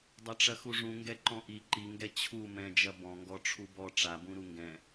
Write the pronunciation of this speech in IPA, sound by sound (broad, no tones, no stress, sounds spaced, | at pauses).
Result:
dˤ ɐ ʈ͡ʂ ɐ x u ʐ ũ ŋ ɡ ɛ ǃ ɔ̃ ʔ i ǃ i ŋ ɡ ɛ t͡ɕʰ u m ɛ̃ d͡ʒ ɐ b ɔ̃ ŋ ɡ ɔ ʈ͡ʂʰ u b ɔ ʈ͡ʂ a b ũ ɾ u ŋ ɡ ɛ̃